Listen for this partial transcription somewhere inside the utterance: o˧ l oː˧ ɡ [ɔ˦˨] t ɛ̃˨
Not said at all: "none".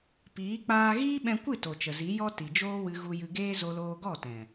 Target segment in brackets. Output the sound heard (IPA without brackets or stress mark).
ɔ˦˨